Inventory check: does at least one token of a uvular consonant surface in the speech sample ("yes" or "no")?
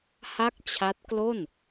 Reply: no